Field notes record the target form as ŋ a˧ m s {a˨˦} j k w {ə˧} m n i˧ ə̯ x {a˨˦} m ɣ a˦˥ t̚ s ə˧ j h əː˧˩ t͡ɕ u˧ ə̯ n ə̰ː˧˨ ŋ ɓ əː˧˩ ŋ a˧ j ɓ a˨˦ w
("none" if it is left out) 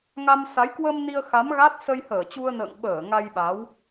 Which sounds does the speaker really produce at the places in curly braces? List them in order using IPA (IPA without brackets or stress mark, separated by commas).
a˨˦, ə˧, a˨˦